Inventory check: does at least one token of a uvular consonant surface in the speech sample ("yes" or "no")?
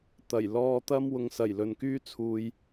no